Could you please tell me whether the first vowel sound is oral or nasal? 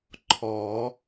oral